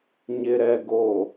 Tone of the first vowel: low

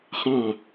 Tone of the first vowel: falling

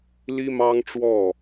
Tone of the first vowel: high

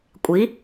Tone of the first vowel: rising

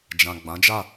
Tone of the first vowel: low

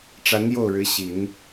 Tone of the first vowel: rising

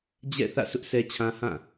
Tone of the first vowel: falling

